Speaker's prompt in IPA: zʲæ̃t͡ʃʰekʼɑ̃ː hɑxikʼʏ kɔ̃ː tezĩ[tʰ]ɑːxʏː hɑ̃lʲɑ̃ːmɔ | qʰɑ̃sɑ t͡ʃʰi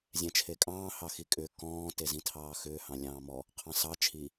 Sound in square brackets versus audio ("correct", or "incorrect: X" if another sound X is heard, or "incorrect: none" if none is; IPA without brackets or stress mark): correct